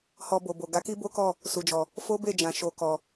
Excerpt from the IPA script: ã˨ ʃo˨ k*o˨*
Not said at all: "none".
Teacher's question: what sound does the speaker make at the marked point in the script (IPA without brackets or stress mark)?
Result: ɔ˨